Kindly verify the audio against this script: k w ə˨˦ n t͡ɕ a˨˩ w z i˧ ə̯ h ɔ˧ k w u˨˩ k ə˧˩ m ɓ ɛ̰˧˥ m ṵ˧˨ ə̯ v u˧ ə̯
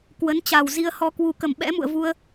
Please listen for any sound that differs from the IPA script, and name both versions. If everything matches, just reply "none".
none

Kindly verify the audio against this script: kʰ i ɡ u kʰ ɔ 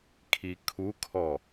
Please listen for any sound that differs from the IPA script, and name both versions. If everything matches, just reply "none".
ɡ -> kʰ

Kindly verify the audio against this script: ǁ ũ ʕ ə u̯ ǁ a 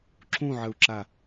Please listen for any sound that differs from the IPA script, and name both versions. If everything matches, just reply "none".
none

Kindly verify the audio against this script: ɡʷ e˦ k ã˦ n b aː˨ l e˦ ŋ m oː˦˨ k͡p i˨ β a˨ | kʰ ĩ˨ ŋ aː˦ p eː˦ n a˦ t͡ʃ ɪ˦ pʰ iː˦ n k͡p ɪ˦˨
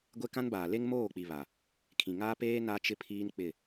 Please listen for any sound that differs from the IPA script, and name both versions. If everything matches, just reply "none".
none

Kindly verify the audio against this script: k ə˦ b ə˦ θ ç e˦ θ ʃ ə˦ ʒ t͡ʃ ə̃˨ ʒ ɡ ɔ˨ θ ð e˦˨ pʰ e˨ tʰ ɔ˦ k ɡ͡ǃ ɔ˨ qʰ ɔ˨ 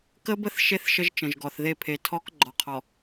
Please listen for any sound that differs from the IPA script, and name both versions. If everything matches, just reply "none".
ç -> ʃ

